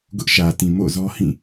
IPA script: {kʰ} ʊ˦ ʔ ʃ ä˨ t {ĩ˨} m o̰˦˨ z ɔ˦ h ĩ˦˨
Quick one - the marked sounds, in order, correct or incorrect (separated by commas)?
incorrect, correct